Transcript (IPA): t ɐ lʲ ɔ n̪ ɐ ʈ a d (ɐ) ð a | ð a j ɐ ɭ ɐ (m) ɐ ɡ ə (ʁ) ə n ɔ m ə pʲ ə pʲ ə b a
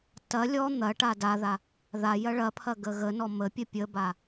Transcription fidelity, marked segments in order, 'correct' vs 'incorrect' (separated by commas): incorrect, incorrect, incorrect